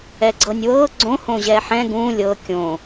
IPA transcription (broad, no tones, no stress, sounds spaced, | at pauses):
ɛ ɡ͡ǀ ɤ nʲ w ɤ ɡ͡ǀ õ h õ ʑ ɛ ħ ɛ̃ ɡ ũ lʲ ɤ kʲ õ